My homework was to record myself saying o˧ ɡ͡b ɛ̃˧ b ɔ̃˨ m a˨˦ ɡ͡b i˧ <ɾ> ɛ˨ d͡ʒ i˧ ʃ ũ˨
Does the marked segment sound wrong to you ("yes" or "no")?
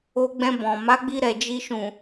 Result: no